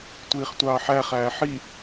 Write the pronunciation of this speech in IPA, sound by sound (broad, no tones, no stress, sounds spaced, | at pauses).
tʷ iː χ tʷ ɑː ħ æ χ æː ħ i